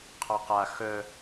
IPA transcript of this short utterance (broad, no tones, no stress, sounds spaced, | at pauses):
qʰ ɔ q a x œ